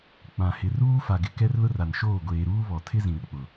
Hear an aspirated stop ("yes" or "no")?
yes